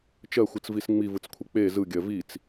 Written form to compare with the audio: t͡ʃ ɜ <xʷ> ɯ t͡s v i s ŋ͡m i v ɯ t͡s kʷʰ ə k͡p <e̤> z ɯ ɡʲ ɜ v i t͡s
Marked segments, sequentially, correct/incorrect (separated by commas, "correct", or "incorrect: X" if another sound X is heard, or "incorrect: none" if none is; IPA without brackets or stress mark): correct, incorrect: e